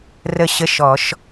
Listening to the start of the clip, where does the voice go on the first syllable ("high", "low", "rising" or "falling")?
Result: falling